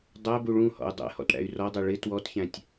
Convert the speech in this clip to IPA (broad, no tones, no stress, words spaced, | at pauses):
dˤæbu ɭũhɔ̰u̯ dˤɛ̰hɔ̰t ɽæ̰y̯rɔdˤɛ ɭɪ twɔtçæ̃tʲ